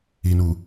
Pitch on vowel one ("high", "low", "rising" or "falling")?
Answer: low